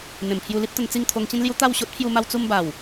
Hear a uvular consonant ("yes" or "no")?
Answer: no